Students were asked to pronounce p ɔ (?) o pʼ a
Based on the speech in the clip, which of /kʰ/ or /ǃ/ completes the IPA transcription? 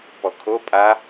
kʰ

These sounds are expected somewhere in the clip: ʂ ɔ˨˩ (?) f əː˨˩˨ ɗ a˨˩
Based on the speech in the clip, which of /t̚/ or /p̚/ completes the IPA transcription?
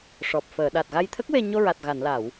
p̚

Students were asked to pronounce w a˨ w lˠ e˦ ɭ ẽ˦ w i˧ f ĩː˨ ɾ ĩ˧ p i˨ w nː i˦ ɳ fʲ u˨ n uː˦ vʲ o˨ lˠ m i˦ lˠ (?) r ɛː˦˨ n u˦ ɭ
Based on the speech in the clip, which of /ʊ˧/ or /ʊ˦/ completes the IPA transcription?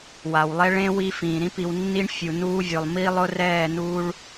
ʊ˦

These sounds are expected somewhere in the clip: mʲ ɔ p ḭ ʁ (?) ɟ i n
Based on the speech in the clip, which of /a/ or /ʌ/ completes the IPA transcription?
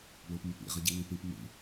ʌ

